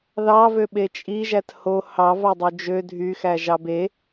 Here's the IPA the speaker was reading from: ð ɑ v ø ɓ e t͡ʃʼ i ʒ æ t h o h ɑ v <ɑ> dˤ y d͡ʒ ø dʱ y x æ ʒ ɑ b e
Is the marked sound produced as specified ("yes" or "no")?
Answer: yes